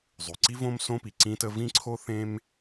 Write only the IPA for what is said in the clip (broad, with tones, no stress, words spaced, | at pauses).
zˤʉ˩ǀi˥võ˥m sõ˥pi˩ǀĩ˥tə˥ vĩ˥ǀʰo˥ θẽ˥m